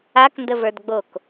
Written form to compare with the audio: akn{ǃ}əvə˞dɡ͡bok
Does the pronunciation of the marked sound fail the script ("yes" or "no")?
yes